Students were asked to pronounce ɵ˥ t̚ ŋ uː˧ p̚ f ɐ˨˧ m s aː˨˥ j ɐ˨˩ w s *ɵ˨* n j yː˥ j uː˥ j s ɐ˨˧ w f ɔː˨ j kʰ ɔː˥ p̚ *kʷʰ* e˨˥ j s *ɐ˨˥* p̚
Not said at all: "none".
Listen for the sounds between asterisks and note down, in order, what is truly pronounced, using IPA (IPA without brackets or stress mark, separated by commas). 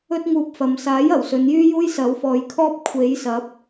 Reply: ɵ˨˧, kʷʰ, ɐ˨˥